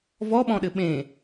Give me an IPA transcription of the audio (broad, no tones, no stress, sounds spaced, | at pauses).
v ɔ ɓ ɔ̃ ɗ ɘ ɓ ẽ